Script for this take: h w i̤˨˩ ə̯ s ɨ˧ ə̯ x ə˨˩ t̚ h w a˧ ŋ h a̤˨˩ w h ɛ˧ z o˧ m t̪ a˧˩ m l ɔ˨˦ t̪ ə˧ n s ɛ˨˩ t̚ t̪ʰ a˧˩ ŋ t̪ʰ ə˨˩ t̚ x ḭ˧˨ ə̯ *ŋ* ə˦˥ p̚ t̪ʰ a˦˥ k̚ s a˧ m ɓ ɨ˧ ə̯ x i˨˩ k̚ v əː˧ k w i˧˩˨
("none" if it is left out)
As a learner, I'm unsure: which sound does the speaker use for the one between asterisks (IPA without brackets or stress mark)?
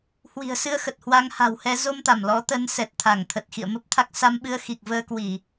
m